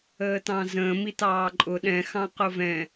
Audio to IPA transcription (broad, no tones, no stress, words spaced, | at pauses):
əːtɑ̃zə̃ː mitɑːǃʼʊ ɗɛ̃ xɑ̃qʊvɛ̃